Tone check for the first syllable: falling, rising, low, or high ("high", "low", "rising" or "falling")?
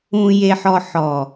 low